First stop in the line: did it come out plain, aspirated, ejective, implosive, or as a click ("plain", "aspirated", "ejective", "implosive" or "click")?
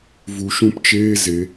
plain